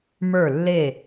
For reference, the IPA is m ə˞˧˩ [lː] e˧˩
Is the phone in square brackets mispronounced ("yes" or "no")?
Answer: no